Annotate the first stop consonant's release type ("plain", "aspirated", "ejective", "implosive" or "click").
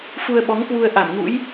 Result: implosive